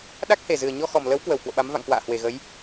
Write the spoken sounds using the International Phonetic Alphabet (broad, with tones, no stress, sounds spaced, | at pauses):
ɗ a˦˥ k̚ h e˧˩ z ɨ˨˩ ə̯ ɲ ɔ˧ x ɔ˨˩ m l ə˨˦ w k w ə˧˩ w k w o̰˧˨ ɓ a˨˦ m v a̰˧˨ ŋ k w a̰ː˧˨ h w e˨˩ ɣ ə˨˦ j